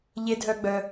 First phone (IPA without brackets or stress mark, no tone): ʎ